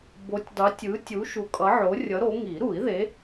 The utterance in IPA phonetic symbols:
b o˨˥ tʲ dˤ u˨˥ tʲ ɯ˨˥ tʲ u˨˥ ʃ u˨˥ kʼ ʌ˨˥ ʕ o˨˥ rʲ ʌ˨˥ ɾ o˨˥ ŋ i˨˩˦ ɾ u˨˩˦ i̯ ð e˨˥

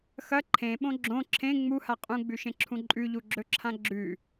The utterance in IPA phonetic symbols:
x ɐ ǃʰ ẽ ɓ õ ɡ͡ǁ õ ǁʰ ẽ ŋ͡m u h a qʼ ũ ɡ͡b ʉ ʃ ẽ ǁʰ ũ ǃʼ ʉ ʎ u ɡ͡ǁ ɵ ǁʰ ã ɡ͡ǁ ʉ

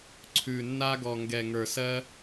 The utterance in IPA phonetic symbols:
ǀʰ ʉ˨˩ nː a˦ ɡ ɔ˨˩ ŋ ɡ ɛ˨˩ ŋ ə˞˨˩ s ɜ˦

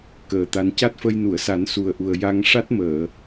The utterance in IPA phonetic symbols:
k əː˨˩ t̪ a˧ n c a˦˥ t̚ f ə˧ j n u˨˩˨ ə̯ s a˨˩˦ n s u˨˩ ə̯ ʔ u˨˩ ə̯ j a˧ ŋ ʂ a˦˥ t̚ m əː˨˩˨

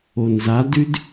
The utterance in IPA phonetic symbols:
o n z a d ʉ d

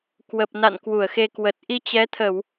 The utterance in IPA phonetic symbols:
k w ə˨˩ p̚ n a̰˧˨ n k w u˧˩ ə̯ x e˧ k w ə˨˩ t̚ ʔ i˧ t͡ɕ ɛ˨˦ t̪ʰ ə˧˩˨ w

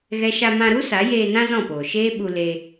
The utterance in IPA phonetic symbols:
ɣ ɛ˦ ʃ a˧ m ã˧ ɾ u˦ s a˨˦ j eː˧ n ã˦ z ɔ̃˦˨ p oː˨ ʃ eː˦ ɓ u˧ l e˧

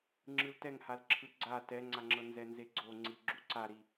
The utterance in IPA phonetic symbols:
ŋ͡ǁ ɯ l t ɛ ŋ h a l ǁʰ ɯ ɡ͡ǀ a t ɛ ŋ͡ǀ a ŋ͡ǁ ɤ n z ɛ n z e ɡ͡ǀ o ŋ͡ǀ i ɡ͡ǁ u ǀ a ɾ i

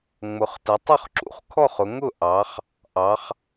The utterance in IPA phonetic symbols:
ŋ͡m ʊ˩˧ χ t ə˩˧ tˤ ʊ˥˨ χ ǁ ṵ˩˧ χ kʰ ɔ˥˨ χ ʊ˩˧ ŋ ʊ˥˨ ʔ ɑ˩˧ χ | ʔ ɑ˩˧ χ

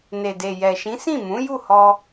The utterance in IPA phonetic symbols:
n e˨ d e˨ j ɛ˨ ʃ ĩ˨˦ s ĩ˦˨ m ũ˨˦ j u˦˨ h ɔ˧

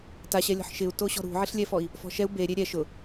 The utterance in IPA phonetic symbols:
t a ɕ ɛ lʲ ɔ̤ ħ ʃ ɪ u̯ t o ɕ ɔ̤ ɾ ṳ ʕ ɪ ɬ lʲ ɛ f ɔ i̯ | f ɔ̤ ʃ ɛ u̯ b e ɾʲ e ɾʲ ɛ ʃ ʊ

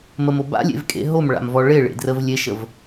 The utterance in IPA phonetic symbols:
m ə m o b a̰ lʲ ḛ v kʼ ḛ ɦ o m ɭ a̰ m v ɔ ɭ e ɭ ḛ d r ə v lʲ e ʃ ə v

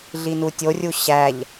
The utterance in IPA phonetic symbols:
ɮ i n u tʲ o rʲ u ɕ æ ʎ

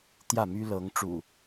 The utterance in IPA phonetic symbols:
t̪ j ä˥˨ m y˦ l ɤ˨˦ ŋ ʈ͡ʂ ṵ˨˩

